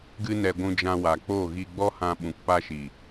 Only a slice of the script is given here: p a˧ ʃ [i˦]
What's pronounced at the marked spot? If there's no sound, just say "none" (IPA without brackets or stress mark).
i˨